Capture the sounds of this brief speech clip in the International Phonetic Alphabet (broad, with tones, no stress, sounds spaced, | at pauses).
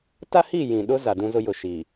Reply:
t a˦ h i˦˨ j ĩ˨ ɗ ʊ˦ z a˨ d ũ˦ z ʊ˦ j ʊ˨ ʃ i˨